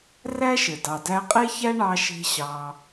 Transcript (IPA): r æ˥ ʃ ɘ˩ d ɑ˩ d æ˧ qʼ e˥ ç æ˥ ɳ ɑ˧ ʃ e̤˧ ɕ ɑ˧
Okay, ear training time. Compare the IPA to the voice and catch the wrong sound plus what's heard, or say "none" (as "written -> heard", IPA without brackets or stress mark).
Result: none